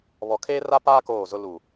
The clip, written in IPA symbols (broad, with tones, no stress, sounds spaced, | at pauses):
β ɔ˨ kʰ eː˦ r a˦ p aː˦ k oː˦˨ z ʊ˦ l u˨